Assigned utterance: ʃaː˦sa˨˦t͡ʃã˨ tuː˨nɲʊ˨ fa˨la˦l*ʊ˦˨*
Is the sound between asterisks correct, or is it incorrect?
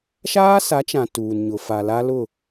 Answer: correct